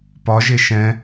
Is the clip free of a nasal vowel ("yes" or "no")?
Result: no